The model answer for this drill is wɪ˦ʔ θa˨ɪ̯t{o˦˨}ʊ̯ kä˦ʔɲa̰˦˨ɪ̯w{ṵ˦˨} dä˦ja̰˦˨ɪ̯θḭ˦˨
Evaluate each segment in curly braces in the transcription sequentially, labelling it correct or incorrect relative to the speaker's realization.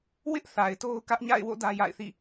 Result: incorrect, incorrect

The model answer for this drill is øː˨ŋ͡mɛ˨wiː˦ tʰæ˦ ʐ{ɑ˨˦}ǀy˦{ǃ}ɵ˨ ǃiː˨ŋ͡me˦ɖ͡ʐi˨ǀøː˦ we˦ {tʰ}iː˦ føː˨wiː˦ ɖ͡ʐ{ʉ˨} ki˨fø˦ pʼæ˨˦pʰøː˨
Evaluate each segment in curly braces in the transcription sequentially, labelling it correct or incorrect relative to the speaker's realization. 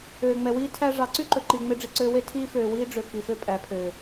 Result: correct, correct, correct, incorrect

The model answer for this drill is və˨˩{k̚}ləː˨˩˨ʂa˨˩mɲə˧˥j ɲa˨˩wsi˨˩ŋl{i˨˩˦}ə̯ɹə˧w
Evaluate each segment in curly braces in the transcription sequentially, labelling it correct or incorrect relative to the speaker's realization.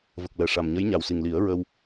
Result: correct, correct

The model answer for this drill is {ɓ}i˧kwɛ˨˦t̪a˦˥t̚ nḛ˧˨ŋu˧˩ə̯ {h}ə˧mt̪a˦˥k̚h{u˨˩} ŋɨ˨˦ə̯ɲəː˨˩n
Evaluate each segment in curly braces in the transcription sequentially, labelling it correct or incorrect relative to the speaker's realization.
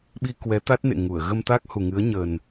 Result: correct, incorrect, correct

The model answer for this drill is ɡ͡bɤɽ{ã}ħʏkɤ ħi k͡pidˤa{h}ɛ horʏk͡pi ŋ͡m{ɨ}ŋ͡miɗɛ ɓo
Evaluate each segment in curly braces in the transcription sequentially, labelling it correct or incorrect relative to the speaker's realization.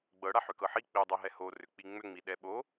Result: incorrect, incorrect, incorrect

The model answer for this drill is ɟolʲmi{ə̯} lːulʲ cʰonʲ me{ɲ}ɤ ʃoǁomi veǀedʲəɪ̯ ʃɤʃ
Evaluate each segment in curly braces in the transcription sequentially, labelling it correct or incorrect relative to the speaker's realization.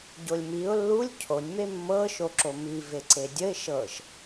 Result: incorrect, incorrect

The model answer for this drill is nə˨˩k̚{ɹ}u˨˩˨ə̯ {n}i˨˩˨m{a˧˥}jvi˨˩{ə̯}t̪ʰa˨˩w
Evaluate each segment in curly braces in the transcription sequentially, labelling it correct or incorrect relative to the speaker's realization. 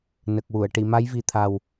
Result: incorrect, incorrect, correct, incorrect

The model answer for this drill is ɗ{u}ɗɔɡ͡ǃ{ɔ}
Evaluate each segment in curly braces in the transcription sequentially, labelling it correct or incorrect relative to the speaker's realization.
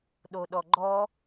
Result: incorrect, correct

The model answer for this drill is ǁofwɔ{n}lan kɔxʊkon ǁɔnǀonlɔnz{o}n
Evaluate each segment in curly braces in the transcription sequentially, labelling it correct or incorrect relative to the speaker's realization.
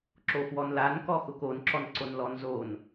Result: correct, correct

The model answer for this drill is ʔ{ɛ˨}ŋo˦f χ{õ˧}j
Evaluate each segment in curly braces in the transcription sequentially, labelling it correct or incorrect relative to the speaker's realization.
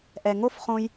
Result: correct, correct

